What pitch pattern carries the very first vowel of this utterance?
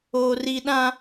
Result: high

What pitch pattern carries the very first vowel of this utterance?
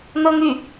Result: high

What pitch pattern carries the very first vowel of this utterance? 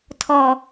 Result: low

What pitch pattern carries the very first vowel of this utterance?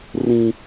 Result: high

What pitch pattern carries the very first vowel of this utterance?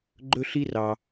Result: high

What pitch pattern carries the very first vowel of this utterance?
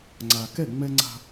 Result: low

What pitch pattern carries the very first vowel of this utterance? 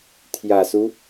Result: low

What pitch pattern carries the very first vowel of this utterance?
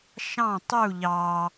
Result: falling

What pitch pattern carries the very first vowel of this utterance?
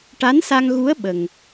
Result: rising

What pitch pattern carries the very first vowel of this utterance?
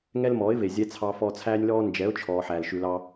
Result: high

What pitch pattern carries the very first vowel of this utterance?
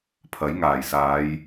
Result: rising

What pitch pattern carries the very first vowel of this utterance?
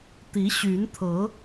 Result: rising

